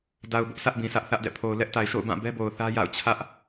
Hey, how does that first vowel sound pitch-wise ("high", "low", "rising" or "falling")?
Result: low